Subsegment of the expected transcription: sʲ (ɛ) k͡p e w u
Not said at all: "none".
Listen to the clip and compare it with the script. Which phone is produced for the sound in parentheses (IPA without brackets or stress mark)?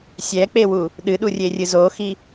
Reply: ɛ